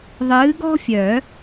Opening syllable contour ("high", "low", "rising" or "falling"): rising